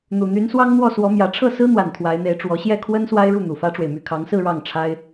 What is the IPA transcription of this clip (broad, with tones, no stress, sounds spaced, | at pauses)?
n̪ u˨˩ n̪ y˧˥ n s w ɑ˥ ŋ n̪ w ɔ˥˩ s w ɔ˧˥ m j ä˧˥ ʈ͡ʂʰ ɤ˥˩ s ɹ̩˥ n̪ w a˨˩ n t̪ʰ w a˧˥ ɪ̯ n̪ e˧˥ ɪ̯ ʈ͡ʂ w ɔ˧˥ ɕ j ɛ˥˩ kʰ w ə˥ n s w a˥ ɪ̯ ɻ u˥˩ n̪ u˨˩ f ä˥ ʈ͡ʂ w e˨ ɪ̯ m y˥˩ kʰ ɑ˧˥ ŋ s ɹ̩˥˧ ɻ ɑ˥˩ ŋ ʈ͡ʂʰ a˥ ɪ̯